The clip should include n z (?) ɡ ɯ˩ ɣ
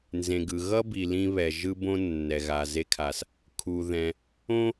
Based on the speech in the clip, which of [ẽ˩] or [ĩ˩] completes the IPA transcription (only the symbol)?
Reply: ẽ˩